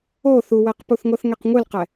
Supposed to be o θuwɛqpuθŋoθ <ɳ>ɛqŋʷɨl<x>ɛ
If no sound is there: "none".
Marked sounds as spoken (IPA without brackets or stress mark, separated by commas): ŋ, q